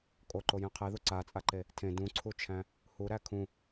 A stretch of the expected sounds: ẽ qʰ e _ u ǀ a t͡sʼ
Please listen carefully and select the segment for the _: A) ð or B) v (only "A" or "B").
A